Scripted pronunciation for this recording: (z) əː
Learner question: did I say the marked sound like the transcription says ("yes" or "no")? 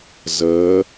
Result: yes